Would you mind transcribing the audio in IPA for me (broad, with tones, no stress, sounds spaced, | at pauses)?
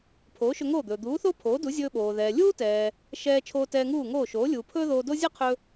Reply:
pʰ oː˩˥ ʃ ɵ˧ ŋ oː˥˩ d̪ ɵː˩ d̪ uː˩˥ θ o˥ pʰ oː˩˥ d u˩˥ zʲ ɵː˧ ɓ oː˩ ð ɛː˩ lʲ uː˥ t ɛː˩ | ʃ ɛː˧ t͡ʃʰ oː˧ t ɛː˧ ŋ uː˥˩ ŋ oː˥˩ ʃ oː˩˥ lʲ uː˩ pʰ ɵː˥ ð oː˧ d o˥ zʲ ɛ˥ qʰ ɵ˧